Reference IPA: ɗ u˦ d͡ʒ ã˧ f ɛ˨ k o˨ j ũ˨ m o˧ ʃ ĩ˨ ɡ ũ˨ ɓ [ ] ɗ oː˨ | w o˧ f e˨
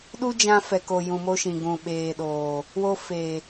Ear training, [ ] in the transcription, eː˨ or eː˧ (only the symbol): eː˨